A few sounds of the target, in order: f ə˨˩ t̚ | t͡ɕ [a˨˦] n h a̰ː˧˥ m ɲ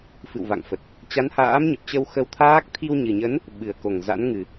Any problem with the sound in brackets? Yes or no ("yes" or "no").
no